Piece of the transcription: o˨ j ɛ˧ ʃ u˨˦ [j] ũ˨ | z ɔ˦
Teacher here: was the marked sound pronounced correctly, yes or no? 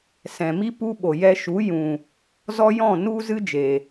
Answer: yes